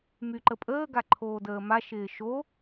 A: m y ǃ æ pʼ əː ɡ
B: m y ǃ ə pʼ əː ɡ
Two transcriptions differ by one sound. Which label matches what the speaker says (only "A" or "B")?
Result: B